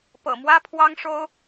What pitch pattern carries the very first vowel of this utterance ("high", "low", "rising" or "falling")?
low